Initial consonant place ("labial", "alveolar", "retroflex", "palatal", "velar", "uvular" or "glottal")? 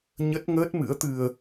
palatal